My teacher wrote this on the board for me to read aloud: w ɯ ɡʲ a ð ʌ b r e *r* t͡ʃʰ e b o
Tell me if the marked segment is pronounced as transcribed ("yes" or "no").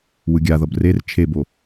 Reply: yes